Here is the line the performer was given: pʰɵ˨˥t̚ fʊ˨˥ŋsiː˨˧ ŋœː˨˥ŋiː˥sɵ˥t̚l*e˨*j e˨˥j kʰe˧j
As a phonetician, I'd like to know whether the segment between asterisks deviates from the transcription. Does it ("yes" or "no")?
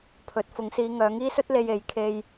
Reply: yes